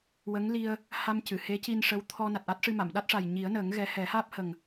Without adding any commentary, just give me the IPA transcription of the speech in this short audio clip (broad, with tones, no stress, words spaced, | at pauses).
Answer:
wə˧˥ŋli˧ə̯ | ha˧m cɨ˨˩˨ he˧˥ci˧nʂə˧˥w t̪ʰɔ˧ na˨˩t̚ʔa˦˥t̚ʂɨ˧ma˨˩˨m ɗa˦˥t̚ʂa˨˩j ɲi˨˩˦ə̯nəː˨˩˦ŋ ɣɛ˧˥ hɛ˨˩˦haː˦˥p̚ hə˨˩ŋ